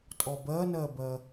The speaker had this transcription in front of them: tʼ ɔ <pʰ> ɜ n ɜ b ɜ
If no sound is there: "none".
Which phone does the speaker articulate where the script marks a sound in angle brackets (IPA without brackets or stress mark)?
b